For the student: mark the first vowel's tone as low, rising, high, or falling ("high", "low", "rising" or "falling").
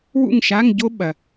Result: falling